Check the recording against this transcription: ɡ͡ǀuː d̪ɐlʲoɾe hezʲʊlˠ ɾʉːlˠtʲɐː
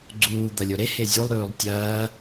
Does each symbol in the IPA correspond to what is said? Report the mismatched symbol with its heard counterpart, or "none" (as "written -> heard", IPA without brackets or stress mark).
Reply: ʊ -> u